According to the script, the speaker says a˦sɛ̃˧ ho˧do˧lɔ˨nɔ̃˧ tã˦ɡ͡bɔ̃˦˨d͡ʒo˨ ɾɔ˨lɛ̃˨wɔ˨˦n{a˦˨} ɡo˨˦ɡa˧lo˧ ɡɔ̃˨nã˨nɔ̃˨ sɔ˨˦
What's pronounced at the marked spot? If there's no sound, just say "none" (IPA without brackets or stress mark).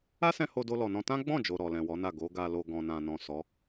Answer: a˦˨